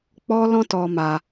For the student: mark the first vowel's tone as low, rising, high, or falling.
high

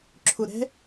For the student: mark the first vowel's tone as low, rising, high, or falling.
low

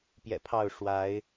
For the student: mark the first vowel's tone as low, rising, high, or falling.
low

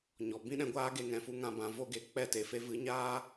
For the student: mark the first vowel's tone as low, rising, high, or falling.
low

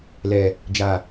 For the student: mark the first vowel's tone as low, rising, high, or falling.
low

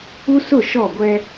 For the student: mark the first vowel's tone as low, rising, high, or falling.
high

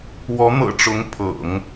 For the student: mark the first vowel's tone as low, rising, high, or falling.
rising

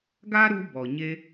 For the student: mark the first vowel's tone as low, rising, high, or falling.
high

